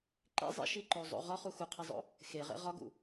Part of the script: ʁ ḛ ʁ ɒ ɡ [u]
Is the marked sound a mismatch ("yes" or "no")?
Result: yes